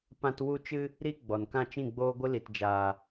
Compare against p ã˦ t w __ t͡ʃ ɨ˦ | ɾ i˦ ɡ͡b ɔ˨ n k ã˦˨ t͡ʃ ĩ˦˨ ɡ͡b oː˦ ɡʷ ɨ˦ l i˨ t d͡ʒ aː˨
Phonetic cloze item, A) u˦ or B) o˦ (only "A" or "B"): A